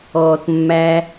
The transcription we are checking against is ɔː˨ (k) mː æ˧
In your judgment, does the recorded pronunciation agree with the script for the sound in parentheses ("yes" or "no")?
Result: no